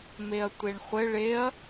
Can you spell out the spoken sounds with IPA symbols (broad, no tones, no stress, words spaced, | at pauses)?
meɐ̯tʷeɳχʷɘ ɭeɐ̯